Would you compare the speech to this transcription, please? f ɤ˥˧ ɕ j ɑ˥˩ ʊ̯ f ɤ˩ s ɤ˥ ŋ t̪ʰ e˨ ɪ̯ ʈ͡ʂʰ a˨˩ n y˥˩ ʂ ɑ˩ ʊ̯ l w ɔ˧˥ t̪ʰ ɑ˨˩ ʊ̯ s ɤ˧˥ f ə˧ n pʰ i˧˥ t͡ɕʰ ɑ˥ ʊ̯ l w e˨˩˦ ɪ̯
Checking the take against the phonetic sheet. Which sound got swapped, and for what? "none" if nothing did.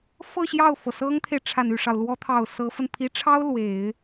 t͡ɕʰ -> ʈ͡ʂʰ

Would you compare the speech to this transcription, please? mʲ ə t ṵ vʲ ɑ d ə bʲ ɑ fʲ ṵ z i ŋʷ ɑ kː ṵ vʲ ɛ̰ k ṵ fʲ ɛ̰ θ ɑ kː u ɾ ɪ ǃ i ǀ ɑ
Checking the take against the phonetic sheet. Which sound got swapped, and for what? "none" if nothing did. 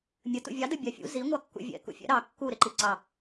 θ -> ɾ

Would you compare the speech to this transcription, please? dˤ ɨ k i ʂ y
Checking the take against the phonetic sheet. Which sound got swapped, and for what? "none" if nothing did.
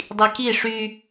ɨ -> i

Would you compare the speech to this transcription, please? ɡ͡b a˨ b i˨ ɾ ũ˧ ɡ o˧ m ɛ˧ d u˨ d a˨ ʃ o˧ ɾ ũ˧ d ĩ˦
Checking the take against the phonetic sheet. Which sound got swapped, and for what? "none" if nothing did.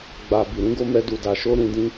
none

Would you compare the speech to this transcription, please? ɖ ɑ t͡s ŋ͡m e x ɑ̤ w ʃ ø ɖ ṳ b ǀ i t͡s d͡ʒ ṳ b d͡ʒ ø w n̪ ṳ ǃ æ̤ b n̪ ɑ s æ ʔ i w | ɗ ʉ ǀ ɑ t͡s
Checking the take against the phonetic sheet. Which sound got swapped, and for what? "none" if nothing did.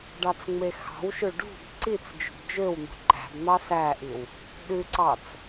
none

